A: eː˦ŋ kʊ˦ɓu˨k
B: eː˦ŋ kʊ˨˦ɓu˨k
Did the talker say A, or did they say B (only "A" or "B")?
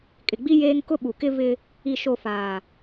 A